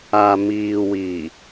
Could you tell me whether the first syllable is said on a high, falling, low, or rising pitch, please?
low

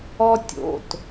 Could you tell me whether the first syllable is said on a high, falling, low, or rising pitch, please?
high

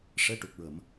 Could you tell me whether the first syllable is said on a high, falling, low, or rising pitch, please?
rising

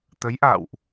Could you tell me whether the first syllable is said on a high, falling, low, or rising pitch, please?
rising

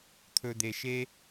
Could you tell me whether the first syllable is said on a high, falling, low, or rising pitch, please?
low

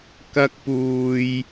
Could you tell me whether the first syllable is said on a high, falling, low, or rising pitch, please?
high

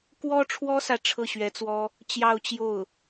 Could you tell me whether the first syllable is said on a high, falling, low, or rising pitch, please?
high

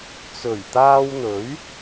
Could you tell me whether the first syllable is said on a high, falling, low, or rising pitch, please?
low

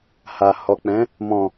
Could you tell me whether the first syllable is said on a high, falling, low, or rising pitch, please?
low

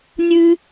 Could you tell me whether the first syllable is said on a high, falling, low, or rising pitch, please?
high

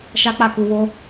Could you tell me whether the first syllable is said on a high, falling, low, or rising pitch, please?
high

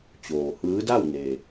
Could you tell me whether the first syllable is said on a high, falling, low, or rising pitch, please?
low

